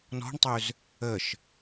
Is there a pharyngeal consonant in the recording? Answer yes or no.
no